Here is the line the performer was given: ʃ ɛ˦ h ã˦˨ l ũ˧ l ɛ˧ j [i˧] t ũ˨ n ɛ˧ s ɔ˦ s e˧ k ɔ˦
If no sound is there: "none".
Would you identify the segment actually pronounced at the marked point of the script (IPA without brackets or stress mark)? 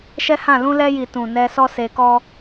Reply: i˨